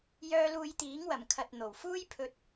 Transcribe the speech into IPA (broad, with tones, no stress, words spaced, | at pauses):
jœː˧ luː˧jt̪iː˨˥ŋ wɐ˨˩mkʰɐ˨t̚ n̪o˨˩wfuː˥jpʰɵ˧t̚